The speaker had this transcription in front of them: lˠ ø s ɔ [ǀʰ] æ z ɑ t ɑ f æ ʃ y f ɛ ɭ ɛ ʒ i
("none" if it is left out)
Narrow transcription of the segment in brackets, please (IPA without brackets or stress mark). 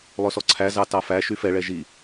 ǀʰ